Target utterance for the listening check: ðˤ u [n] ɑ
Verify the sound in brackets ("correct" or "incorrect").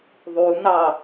correct